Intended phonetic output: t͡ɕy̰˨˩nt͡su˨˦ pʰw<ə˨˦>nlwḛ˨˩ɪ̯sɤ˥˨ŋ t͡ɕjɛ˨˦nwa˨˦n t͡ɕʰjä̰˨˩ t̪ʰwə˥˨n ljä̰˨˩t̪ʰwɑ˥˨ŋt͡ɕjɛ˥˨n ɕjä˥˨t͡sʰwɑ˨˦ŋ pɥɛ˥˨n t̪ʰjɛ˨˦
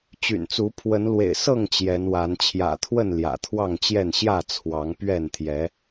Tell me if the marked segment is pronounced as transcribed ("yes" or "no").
yes